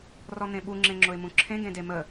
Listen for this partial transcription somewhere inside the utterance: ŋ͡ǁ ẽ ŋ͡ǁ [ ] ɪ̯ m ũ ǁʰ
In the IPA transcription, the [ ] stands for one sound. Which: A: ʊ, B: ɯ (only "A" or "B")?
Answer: A